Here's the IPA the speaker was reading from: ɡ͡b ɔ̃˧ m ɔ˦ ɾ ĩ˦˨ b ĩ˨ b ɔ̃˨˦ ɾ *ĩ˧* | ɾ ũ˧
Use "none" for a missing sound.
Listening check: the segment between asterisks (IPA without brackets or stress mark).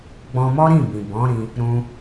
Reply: ĩ˧